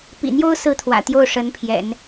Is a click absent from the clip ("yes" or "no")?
yes